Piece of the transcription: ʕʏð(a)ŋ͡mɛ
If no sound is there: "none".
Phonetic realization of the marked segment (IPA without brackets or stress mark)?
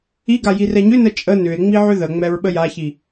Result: ə